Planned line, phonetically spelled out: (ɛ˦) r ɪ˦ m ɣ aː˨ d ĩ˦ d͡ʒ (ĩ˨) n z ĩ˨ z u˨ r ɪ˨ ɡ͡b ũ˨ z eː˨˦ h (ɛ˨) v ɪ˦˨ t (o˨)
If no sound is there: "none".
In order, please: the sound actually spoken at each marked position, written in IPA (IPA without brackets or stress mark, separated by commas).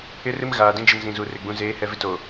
ɪ˦, i˨, ɛ˨, o˨